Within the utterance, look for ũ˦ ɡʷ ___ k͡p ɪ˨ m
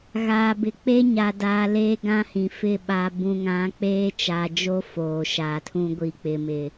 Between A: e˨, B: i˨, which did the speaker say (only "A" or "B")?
B